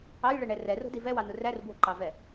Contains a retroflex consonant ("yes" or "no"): yes